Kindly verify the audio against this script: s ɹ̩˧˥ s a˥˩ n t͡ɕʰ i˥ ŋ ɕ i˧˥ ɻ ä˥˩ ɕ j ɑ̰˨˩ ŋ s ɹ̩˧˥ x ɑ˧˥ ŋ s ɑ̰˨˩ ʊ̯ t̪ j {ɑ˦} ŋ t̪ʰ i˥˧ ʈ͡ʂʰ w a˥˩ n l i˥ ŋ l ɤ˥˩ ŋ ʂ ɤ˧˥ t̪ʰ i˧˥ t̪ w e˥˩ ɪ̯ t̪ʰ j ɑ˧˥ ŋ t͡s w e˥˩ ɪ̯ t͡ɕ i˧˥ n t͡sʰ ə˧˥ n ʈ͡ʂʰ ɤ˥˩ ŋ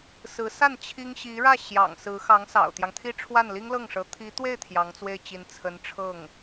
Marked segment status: correct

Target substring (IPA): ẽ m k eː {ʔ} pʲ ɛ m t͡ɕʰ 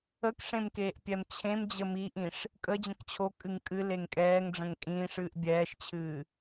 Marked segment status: correct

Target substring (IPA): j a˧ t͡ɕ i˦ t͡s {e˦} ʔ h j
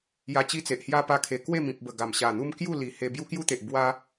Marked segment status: incorrect: e˨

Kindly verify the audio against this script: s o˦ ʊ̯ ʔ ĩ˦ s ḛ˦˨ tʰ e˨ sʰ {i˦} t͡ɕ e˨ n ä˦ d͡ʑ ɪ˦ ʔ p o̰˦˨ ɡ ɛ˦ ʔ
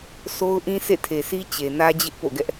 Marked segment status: correct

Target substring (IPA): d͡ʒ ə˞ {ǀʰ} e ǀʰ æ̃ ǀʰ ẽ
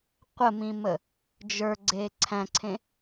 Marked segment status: incorrect: ɡ͡ǀ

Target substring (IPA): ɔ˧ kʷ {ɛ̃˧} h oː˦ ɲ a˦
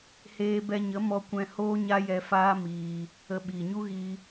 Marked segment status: correct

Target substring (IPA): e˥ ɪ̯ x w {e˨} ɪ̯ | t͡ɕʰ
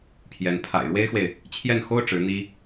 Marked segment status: correct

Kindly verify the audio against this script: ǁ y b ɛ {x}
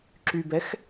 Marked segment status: correct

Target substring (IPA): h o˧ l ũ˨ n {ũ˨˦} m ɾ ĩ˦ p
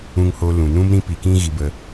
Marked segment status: incorrect: ũ˧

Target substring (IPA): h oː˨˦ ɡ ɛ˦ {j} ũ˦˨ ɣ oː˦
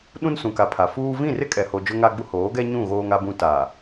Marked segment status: incorrect: ɲ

